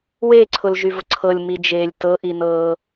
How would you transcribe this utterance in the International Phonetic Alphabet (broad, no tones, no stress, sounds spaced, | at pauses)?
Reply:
w eː ǀʰ ʊ l ʒ y v ʊ ǀʰ ɤ lʲ m i d͡ʒ eː lʲ t ɤ ʔ i n ɤː